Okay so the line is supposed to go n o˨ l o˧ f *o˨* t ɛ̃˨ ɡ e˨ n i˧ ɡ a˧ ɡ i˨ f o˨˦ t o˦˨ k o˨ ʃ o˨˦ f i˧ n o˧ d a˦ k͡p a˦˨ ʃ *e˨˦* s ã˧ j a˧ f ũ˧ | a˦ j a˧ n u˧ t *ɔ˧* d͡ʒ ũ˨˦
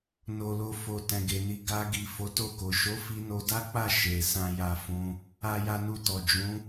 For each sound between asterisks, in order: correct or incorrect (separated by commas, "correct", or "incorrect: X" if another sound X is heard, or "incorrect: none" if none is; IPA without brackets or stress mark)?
correct, incorrect: e˨, incorrect: ɔ˨